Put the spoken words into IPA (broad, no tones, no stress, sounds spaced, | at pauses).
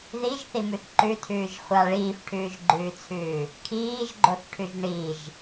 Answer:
ð i ʒ θ i m ʉ θ ǃ ʉ tʰ ʉː ʒ χʷ a ɭ iː f ʈʰ ʉː ʒ ɡ͡ǃ ʉː t͡sʰ ʉː | kʰ iː ʒ ɡ͡ǃ o θ ʈʰ ʉ ʒ ɳ i ʒ